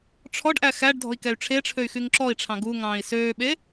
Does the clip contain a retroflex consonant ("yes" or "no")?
yes